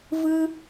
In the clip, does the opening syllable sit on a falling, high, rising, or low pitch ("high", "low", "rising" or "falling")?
high